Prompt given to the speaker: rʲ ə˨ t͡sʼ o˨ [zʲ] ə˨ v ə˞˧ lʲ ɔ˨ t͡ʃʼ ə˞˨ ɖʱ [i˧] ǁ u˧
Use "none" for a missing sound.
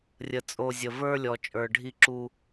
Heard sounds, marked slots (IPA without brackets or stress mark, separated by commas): zʲ, i˧